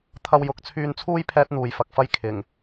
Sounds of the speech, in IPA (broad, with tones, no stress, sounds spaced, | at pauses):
t̪ʰ ɐ˧ w j ʊ˨˥ k̚ t͡sʰ yː˧ n t͡sʰ uː˥ j pʰ ɛː˥ t̚ n̪ uː˨ j f ɐ˨˥ k̚ f ɐ˥ j kʰ ɪ˨˩ ŋ